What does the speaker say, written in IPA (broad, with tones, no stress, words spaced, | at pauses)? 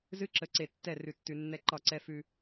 zɨ˦ǁə˨ ǀe˨tːɛ˦˨ rʉ˨tːʉ˨ nːɛ˦ǃɒ˦˨ǀɛ˦fʉ˦